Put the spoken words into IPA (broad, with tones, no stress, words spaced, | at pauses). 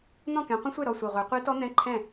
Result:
n̪ɔ̃˥˩kɛ̃˨˦qʷə̃˦˥sʷe˥˩ ɾɔ˥˩sʷɨ˨˩ʁʷe˨˦ qʷe˦˥tɔ˦˥n̪ɛ̃˧˥˧ǃʰɛ̃˥˩